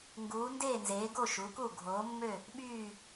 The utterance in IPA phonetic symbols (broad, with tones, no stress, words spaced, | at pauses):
ŋɡuː˩˧ndeː˦˨nzeː˩˧ ɡo˦˨ʃu˩˧ku˦˨ ɡʱoː˩˧mːø˦˨ | ɓyː˦˨